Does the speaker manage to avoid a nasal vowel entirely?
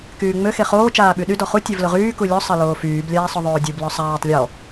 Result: yes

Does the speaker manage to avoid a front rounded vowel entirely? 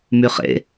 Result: no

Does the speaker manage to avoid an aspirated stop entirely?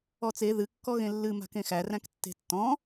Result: yes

